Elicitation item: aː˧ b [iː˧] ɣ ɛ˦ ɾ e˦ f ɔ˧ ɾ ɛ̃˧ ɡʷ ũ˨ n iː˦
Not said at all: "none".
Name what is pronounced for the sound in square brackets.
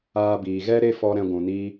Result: iː˨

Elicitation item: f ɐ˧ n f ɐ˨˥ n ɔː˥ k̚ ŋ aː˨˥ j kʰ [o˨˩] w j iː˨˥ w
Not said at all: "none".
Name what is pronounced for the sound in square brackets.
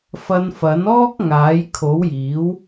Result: o˨˥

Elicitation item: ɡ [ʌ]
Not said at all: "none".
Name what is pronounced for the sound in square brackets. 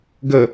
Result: ə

